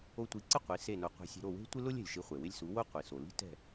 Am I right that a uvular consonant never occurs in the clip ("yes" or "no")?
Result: no